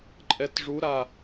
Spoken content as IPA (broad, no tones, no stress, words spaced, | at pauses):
ǃʼɛtʐuɾa